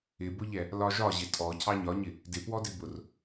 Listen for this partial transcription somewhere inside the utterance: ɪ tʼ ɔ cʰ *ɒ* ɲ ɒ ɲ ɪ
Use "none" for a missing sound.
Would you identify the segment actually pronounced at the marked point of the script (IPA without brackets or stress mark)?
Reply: ɑ